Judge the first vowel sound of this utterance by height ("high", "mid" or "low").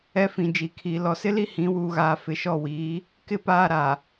mid